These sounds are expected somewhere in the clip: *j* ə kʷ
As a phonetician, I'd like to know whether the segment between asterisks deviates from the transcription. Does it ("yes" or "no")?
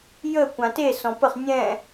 no